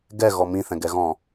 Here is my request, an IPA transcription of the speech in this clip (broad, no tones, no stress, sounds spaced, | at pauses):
ɡ ɛ ɣ ɔ m ĩ θ ɛ̃ ɡ ɛ ɣ ɔ̃